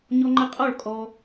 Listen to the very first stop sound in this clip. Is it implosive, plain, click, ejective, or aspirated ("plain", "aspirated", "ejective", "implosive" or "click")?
click